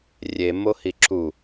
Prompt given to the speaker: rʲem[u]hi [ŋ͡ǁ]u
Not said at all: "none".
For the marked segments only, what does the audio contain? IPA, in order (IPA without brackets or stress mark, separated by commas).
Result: o, ǁ